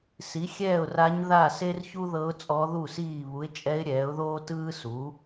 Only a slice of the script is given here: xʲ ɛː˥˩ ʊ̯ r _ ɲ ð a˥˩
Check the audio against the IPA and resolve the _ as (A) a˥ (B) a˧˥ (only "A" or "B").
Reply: B